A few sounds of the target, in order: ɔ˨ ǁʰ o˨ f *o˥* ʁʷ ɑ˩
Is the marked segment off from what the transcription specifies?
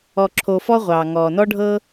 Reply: yes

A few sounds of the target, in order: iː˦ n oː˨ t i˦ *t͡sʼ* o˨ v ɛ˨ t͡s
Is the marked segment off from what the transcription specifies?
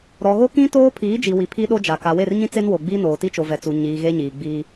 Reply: yes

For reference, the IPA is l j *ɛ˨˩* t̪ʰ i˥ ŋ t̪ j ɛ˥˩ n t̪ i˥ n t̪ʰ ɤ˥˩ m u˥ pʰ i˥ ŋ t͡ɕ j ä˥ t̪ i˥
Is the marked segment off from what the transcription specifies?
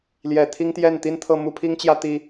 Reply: no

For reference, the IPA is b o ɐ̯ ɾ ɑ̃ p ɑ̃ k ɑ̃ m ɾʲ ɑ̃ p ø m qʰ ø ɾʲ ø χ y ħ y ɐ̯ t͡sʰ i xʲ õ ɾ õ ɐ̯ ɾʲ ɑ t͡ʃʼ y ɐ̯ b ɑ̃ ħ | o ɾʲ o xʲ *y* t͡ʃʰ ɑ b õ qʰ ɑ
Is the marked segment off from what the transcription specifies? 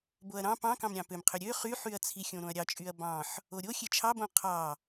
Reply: yes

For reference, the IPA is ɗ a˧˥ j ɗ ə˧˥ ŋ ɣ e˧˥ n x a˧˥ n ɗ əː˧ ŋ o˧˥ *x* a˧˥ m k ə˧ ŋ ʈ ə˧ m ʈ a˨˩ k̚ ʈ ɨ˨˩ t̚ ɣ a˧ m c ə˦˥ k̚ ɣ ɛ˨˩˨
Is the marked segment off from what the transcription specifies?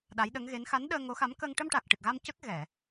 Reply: no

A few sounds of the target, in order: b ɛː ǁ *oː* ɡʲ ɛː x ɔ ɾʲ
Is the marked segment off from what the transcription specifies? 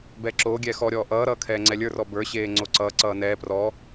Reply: no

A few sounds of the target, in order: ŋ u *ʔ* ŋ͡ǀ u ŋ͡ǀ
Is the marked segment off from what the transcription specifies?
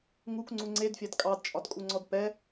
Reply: yes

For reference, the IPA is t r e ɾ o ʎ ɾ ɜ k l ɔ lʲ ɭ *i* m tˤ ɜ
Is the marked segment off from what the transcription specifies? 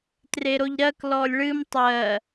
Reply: yes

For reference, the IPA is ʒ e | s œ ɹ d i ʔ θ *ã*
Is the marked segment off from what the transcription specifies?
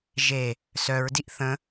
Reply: yes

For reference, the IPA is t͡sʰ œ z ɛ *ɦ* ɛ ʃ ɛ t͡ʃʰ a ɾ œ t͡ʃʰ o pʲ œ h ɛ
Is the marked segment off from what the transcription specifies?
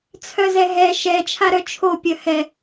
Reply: no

